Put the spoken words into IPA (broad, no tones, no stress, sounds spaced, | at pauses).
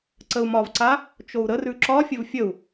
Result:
ǀ ə u̯ m ɒ v ǀ a | t͡ʃ o u̯ ɾ ə r ʉ ǁ ɒ fʲ ə v fʲ ə u̯